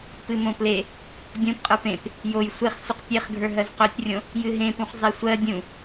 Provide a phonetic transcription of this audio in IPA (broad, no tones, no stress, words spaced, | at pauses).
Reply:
pɨmõple | dʲõpqʼə˞p ẽp | joj sʷeχ sʷɨqtʲeχɡʱə˞ ɦɜzqɵtʲrʲõ | jɨɦẽpũχ zˤesʷɜ dʲũ